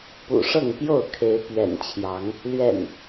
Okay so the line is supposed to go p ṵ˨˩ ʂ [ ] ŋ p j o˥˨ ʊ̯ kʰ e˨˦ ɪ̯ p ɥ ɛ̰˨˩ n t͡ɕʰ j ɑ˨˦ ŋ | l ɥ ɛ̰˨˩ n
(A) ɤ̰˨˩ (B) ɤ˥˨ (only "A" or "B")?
B